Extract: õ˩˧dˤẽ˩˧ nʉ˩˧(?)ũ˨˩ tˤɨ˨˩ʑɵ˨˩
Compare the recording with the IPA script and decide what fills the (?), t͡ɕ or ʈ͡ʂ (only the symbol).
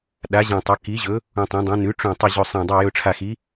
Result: ʈ͡ʂ